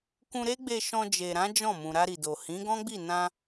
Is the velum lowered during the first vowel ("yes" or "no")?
yes